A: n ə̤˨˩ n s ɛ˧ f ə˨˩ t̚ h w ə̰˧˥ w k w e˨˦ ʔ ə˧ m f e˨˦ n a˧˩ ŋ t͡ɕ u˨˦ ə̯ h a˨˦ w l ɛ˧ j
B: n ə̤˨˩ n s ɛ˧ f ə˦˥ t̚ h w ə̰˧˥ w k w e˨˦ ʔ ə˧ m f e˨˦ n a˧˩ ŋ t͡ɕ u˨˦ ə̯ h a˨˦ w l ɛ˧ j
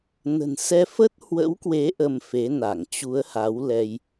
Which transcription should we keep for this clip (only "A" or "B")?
B